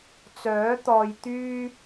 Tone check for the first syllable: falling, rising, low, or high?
rising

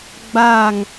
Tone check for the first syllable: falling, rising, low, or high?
falling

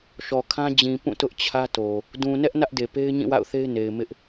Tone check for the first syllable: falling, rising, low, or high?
low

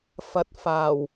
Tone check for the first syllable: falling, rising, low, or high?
low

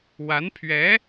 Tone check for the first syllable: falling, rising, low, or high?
rising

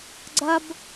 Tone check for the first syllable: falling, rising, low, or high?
high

